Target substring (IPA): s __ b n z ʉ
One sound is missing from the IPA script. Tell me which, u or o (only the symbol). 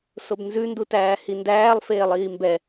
o